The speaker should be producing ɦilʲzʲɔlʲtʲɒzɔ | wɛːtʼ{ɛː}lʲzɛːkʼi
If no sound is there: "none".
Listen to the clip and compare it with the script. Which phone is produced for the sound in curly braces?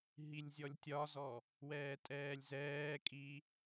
ɛː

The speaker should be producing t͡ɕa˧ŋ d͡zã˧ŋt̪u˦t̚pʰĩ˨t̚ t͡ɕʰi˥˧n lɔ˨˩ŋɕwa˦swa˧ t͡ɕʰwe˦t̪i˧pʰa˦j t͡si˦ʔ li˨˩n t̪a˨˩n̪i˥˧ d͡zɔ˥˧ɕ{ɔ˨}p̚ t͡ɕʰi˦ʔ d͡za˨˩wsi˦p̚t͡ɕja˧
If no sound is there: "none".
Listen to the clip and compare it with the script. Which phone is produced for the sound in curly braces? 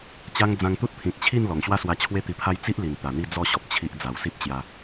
ɔ˨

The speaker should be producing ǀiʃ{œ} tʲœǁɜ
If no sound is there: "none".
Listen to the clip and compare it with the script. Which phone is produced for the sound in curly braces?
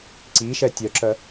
ɛ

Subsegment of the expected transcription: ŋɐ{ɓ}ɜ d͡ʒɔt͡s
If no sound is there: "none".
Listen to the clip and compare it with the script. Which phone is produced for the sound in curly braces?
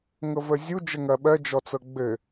ɓ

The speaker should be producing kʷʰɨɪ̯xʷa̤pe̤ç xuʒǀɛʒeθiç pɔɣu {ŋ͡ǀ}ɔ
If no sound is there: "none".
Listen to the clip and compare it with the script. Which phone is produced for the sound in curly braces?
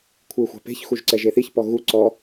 ǀ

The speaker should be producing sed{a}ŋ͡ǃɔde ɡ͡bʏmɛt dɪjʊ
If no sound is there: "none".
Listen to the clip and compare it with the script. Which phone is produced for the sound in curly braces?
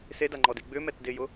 a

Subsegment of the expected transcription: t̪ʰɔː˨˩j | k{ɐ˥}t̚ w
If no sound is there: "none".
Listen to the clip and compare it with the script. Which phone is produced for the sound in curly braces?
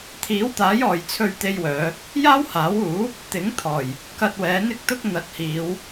ɐ˧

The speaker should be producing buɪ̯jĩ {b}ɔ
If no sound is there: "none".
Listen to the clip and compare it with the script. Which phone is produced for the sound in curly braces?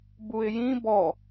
b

